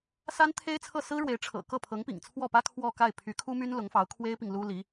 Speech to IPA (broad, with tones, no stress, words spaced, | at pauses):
sa˥nt̪ʰe˥ɪ̯t͡sʰɤ˥˩ sɹ̩˥ɻwe˧˥ɪ̯ ʈ͡ʂʰɤ̰˨˩kɤ˥˩ pʰɤ˧˥ŋpḭ˨˩ŋt͡sʰwɔ˥˩pä˥ kʰwɔ˥˧ka˥˩ɪ̯ pʰy˧˥kʰu˥my˥n lʊ˧˥ŋfɑ˧˥ʊ̯kʰwe˥ɪ̯pi˨ŋ lu˥li˧˥